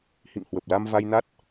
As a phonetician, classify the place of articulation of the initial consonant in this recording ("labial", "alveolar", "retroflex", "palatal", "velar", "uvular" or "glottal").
glottal